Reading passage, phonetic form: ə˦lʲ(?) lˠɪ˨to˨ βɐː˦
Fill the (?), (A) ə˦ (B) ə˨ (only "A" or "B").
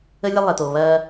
A